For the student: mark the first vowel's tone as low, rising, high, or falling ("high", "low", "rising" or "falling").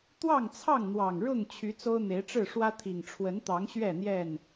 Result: falling